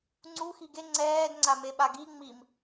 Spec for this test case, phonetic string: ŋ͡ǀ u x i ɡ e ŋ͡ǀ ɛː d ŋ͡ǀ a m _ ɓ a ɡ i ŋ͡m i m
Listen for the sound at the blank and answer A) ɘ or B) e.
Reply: B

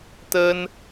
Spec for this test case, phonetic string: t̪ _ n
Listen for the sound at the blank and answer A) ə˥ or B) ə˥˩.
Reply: A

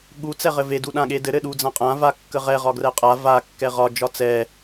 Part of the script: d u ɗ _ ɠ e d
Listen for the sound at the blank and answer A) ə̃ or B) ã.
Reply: B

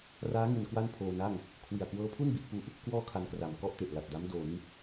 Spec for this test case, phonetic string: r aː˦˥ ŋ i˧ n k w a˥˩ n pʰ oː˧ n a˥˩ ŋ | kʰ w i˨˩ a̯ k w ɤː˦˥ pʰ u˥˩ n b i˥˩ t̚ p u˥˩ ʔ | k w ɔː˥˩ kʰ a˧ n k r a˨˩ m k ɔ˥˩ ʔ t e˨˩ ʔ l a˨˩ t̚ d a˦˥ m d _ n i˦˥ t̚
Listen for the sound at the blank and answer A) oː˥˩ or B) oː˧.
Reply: B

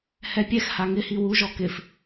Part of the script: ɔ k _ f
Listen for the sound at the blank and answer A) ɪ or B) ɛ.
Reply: A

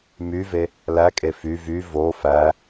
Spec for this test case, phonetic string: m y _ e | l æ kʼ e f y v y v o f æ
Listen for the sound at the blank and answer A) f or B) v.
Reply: B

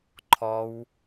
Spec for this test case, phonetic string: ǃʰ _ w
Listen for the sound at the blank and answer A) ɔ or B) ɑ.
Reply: A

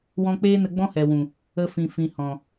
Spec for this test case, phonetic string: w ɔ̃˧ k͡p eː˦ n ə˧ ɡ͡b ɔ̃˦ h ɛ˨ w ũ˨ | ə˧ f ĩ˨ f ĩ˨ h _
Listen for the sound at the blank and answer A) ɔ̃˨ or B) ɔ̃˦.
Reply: A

